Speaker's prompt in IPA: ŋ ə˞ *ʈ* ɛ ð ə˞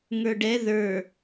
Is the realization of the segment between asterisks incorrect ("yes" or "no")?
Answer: yes